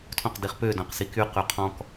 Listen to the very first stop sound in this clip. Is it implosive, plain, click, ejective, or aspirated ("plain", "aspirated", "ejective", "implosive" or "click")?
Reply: aspirated